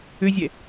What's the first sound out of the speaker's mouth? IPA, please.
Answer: ʏ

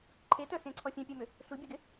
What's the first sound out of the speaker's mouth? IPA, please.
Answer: ǃʰ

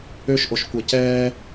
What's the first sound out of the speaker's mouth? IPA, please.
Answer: ø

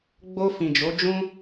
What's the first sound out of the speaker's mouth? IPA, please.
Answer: ɡ͡b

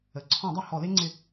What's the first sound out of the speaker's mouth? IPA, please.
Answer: ə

